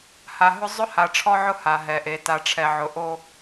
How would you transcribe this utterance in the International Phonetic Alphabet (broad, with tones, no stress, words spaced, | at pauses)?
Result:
ha˨ɦʊ˦ zˤʊ˦ha˨ʈ͡ʂʰɔ˦ʕʊ˦ ha˨ ɦɛ˨ʔe˨ ta˨ʈ͡ʂʰɛ˨ʕʊ˨ ʔo˦